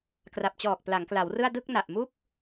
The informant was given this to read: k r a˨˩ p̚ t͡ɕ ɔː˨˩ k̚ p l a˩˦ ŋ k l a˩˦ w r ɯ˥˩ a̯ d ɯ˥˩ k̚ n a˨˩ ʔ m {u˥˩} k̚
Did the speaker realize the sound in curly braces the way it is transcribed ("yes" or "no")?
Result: yes